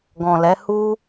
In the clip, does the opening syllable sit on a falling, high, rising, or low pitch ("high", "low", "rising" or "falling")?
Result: low